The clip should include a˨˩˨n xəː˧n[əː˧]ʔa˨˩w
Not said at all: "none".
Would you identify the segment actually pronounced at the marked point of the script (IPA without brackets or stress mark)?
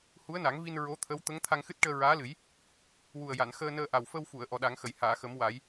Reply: əː˧